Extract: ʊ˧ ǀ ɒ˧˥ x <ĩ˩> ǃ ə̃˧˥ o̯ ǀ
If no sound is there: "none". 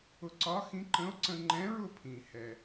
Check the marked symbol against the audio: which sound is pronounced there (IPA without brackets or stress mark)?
ĩ˧˥